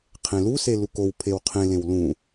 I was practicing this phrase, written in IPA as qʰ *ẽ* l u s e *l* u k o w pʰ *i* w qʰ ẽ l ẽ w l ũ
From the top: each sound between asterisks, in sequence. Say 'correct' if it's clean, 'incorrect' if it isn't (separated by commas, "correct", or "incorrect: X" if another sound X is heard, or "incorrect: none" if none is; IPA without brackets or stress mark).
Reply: correct, correct, incorrect: e